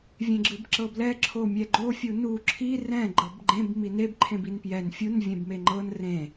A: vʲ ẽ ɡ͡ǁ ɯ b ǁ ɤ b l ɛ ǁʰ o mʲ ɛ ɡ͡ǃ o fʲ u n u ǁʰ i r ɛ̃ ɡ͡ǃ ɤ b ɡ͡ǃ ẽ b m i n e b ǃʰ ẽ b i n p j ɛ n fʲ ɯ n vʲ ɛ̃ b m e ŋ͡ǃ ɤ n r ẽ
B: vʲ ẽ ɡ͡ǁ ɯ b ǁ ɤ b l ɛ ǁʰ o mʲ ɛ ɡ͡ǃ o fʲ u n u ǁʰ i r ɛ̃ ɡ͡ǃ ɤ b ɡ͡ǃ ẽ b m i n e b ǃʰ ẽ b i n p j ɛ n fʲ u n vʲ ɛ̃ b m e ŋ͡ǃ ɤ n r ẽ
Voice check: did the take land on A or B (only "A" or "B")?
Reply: B